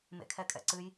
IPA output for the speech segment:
m ḛ kʰ ɛ kʼ ɛ̰ ǀ ɨ j

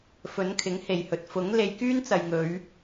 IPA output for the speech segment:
f ɵ˨˥ n kʰ ɪ˨˥ ŋ h e˨ j h ɵ˨ t̚ f ʊ˨˥ ŋ l e˧ j k yː˥ n t͡s ɐ˨ j ŋ ɵ˨˧ ɥ

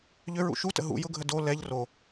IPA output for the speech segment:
ʎ ʏ ɹ ṵ ʃ u t ə̰ ɦ ṵ j ʊ ɡʱ ə d o l ɛ ʎ r o

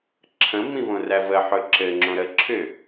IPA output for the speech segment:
ǁʰ ə̃ m ĩ v õ r æ v ə ħ ɵ ǁ ɘ ŋ͡ǁ õ ɾ ə ǁʰ ʏ

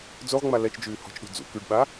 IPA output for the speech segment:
d͡z o ʁ ŋ͡m a l ɛ t͡ʃ d͡ʒ yː h ɔ̤ t͡ʃ ɗ ṳ d͡z ṵ k y ɖ ɓ a

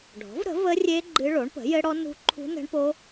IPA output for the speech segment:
ɖʱ ɔ̤˩˥ v ɾ ə̤˩˥ v ə˦˥ rʲ e˦˥ ɡ͡ǃ ɨ˦˥ ɭ o˩˥ ɳ p ə̤˩˥ j ɘ˦˥ ɽ ɔ˦˥ n ṳ˦˥ ǃʰ ṳ˦˥ n ə̤˦˥ ɳ p o˦˥

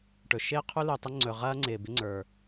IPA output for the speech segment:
ʈ ɵ˩ ʃ ɪː˥ qʰ u˥ l u˩ tˤ ɪ˥ ŋ͡ǀ ɵ˩ ʁ ɐː˥ ŋ͡ǀ ɪː˩ b ɪ˥ ŋ͡ǀ ə˞˩

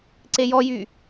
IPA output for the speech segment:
ǀ e j ɔ j y

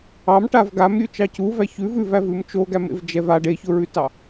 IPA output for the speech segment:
ɑ m ʈ a v ɡ a m ɾʲ ʉ t͡ʃ ɑ c u v æ ç ʉ v ʉ v æ v ʉ m t͡ʃ o ɡ æ m ḛ v d͡ʒ ɛ v a ɖ e ç ʊ ɹ ʉ t ɑ

